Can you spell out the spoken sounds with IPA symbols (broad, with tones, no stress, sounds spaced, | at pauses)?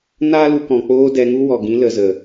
n aː˦ l u˧ k ɔ̃˨ k͡p oː˧ d ɛ˨˦ ŋ u˦ w ɔ˨ ɡ ĩ˨˦ l ə˨ z ə˨